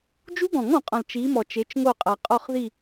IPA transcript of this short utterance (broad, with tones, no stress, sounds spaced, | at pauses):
d͡ʒ u˦˥ ɡ ɔ̃˨˩˦ ŋ ɔ̃˨ qʼ ɔ̃˨ l t͡ʃ i˨˦ m ɔ˨ t͡ʃ e˨˦ t͡ʃ ŋ o˦˨ qʼ a˨ qʼ ɔ˦˨ χ ð i˦˨